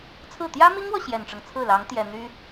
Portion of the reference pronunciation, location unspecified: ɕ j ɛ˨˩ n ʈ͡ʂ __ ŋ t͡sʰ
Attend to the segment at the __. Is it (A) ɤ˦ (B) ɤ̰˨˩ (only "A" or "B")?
A